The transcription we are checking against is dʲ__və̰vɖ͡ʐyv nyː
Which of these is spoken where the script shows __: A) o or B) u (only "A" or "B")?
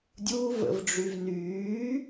B